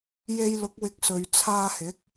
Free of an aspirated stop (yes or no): no